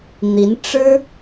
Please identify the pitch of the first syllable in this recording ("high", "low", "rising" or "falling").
rising